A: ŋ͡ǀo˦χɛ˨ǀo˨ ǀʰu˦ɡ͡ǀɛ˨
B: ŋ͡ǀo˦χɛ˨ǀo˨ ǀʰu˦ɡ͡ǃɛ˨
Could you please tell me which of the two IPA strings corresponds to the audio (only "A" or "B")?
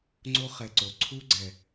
A